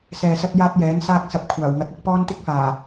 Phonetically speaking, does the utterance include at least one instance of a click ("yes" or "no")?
no